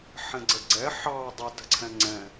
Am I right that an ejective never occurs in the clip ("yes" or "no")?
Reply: yes